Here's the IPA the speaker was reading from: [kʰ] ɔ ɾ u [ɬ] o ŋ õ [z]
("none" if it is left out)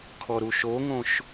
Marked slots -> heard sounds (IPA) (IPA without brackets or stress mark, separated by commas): kʰ, ʃ, ʃ